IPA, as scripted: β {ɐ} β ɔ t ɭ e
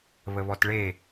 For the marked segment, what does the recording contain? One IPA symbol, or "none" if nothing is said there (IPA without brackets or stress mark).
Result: ə